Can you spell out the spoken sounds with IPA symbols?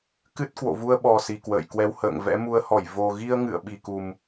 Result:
kɨ˦˥t̚ kwo̰˧˨vu˧ə̯ ɓɔ˨˩ si˨˩kwə̰ː˧˨jkwɛ˨˦w hə̰ː˧˨ŋvɛ̰˧˥mu˨˦ə̯hɔ˧˩j vo˨˩ɣi˧ə̯ŋɨ̰˧˨ə̯ ɓi˨˩ku˨˩m

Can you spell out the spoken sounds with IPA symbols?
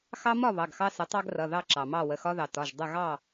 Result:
xɑ˦mɒ˥˨ βɑ˩˧˩ɡxɑ˦ sə˩˥tˤɑ˦ɡrʌ˩˧˩ ðɑ˥˨ǁɑ˩mɑ˥˨ wə˩˧˩xɒ˦ðɑ˩ tɒ˩˧˩ʒdˤə˥˨ ɣɑ˥˨

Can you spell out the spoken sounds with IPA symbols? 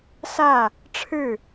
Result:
sä˥˩ | ʈ͡ʂʰɻ̩˥˩

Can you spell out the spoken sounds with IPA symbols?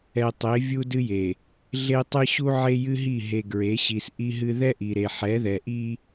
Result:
ɛ˨tˤe˨˦ vʲu˦dɨ˦je˨ | ɮe˦tˤɨ˦ ɕu˦ʕe˦jɨ˦ɦi˦˨ ɦe˨ɡɹe˨˦ɕi˨s ʔi˦ɦɨ˦ ðɛ˦ʔi˨ɾe˨ ħɛ˨˦ðɛ˨ʔi˦

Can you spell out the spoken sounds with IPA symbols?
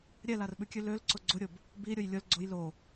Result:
ɾʲɛlarɓʉkʲʉ lølǀʊ ɡ͡ǀʊɾʲʊb | biɾʲʊj lʲʊl ɡ͡ǀʊj lo

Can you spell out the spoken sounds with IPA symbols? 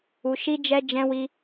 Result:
u˧ʃi˦d͡ʒɛ˦ d͡ʒɛ̃˦wi˦

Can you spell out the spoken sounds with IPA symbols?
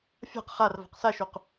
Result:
fʲa̤q χar va̤qsaʃoq

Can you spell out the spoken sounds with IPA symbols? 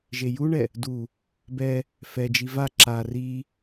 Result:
ʒejuɳɛ | du | bɛ | fɛd͡ʒi va ǁa ri

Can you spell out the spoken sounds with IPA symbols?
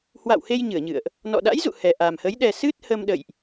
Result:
hwa̰˧˨whe˧j ɲɨ˧˩ə̯ɲɨ̰˧˨ə̯ʔ | nɔ̰˧˨ɗa̰˧˥jzṵ˧˨ hɛ˨˩ʔa˨˩mhə˨˦j ɗɛ˨˩ sɨ˦˥t̚hə˧mɗə̰˧˨jʔ

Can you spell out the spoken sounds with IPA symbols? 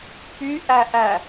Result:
pyʔæʔæ

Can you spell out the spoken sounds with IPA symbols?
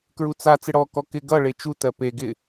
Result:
kɹut͡sa t͡sɪɽɔ kɔkɪ ɡʌ ɭet͡ʃu tɜpe ɡɪ

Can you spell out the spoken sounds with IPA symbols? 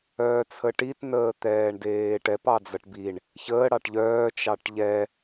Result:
œːt͡sʰəʈit nəːt̪ɛːɳdeːʈɛp ɑd͡zʌʈbiɳ | çəː ɽɑʈʎœː t͡ʃɑʈʎɛ

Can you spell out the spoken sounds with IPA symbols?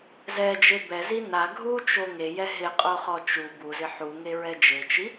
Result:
zɛd͡ʒe bɛzi na ɡʱut͡ʃo ŋejɛ ɦɪqʼoχɔ t͡ʃu buzɪ ħuŋeɹɛ d͡ʒet͡ʃi

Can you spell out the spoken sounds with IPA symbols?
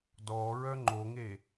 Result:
dɔ ɹœŋ͡ǃoŋe

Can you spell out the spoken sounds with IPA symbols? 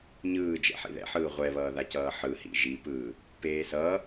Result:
ɲɯː d͡ʒɛ̰ħḭðɛ̰ħɯː ʁʷɛβʌːða cʌːħɯhḭ ʒipɯː | peːsʌː

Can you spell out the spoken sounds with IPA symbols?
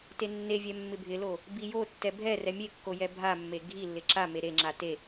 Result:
tenːevʲɛ mːɪbʱɪlo | bijotːɛ bʱɛrɛ mʲekːo jɛbʱamːe ɡʱilːɪ ǁame ɾeŋ͡ǁa te

